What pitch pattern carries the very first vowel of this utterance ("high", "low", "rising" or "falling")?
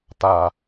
low